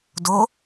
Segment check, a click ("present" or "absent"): absent